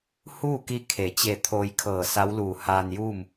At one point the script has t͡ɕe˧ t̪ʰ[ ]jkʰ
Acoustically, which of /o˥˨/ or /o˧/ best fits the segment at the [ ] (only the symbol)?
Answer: o˧